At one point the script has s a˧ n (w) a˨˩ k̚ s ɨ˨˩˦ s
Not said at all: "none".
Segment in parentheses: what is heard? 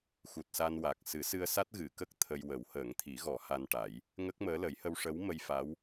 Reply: w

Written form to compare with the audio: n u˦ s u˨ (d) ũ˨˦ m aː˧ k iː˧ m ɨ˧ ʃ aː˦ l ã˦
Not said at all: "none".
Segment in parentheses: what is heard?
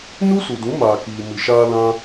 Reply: d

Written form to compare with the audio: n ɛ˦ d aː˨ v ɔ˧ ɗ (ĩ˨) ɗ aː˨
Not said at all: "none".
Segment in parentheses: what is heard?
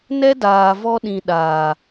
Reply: ĩ˨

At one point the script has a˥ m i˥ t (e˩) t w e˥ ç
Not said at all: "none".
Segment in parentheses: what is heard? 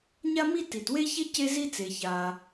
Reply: i˩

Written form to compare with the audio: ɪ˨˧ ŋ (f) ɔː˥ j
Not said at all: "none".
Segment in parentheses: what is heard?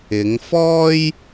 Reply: f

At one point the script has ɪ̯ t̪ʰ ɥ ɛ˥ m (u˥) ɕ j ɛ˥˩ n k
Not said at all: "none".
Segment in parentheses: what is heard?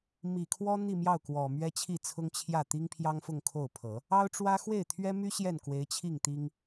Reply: y˥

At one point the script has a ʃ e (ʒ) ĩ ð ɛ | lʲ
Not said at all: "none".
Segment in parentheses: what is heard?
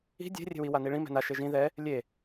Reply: ʒ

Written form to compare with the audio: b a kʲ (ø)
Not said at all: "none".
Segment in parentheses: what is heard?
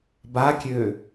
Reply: ø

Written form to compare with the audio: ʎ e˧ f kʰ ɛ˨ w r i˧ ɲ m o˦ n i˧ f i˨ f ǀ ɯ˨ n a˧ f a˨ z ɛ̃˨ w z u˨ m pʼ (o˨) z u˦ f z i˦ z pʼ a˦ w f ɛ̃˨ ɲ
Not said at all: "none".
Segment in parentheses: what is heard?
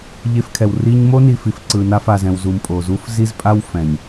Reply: o˨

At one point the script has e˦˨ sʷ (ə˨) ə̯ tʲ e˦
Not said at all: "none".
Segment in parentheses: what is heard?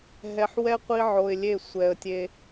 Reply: ɛ˨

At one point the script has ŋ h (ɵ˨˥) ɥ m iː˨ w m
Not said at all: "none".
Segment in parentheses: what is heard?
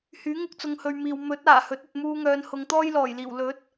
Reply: ɵ˨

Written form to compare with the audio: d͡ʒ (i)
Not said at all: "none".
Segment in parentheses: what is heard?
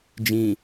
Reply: ĩ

